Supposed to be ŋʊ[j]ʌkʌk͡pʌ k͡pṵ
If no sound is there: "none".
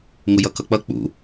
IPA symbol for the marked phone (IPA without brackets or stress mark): j